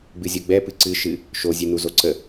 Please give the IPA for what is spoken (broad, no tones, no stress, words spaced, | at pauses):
ɡ͡bɨzʲoɡ͡bɛ pɨǀɨ ʃɨ | ʃozʲɨ nuzoǀə